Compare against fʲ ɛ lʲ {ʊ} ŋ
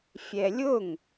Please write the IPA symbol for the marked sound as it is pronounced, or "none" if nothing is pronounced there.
ʊ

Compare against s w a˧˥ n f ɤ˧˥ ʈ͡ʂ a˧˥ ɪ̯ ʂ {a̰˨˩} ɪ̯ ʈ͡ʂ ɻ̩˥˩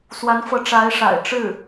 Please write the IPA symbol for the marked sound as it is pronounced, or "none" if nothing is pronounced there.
a̰˨˩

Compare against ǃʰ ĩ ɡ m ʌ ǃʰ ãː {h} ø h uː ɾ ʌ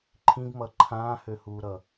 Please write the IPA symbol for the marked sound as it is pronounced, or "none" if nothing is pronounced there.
h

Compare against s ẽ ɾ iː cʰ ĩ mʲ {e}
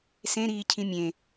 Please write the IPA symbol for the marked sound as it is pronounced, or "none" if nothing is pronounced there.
ẽ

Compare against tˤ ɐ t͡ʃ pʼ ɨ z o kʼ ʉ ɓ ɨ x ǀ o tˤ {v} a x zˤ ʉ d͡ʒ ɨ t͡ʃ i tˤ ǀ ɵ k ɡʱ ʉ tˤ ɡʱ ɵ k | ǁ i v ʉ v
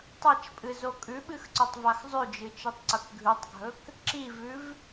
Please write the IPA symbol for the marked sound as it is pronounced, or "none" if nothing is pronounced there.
v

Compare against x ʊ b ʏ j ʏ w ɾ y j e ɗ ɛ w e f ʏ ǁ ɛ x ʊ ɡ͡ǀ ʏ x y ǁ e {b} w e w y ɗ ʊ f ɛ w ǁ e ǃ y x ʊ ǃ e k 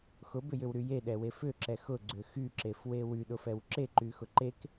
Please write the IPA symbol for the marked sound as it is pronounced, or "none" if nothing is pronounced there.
f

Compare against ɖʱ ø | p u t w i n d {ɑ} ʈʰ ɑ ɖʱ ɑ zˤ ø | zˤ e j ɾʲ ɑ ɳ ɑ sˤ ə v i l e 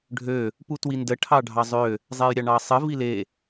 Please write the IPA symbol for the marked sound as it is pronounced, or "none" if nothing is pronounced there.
ə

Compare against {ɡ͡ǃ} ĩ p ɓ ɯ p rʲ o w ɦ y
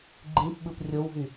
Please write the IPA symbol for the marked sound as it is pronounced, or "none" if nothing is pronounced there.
ɡ͡ǃ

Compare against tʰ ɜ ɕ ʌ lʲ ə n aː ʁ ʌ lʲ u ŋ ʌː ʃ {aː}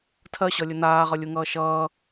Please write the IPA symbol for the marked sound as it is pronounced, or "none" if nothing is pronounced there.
ʌː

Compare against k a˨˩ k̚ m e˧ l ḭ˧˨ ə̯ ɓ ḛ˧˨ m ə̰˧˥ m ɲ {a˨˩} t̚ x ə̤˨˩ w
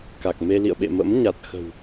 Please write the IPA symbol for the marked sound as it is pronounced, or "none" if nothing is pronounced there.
a˨˩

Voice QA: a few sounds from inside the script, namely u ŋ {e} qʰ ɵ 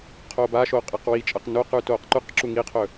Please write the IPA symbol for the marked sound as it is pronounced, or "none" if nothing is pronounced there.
i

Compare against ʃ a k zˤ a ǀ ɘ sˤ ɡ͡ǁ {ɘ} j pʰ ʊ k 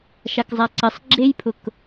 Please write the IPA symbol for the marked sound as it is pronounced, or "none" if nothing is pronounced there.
e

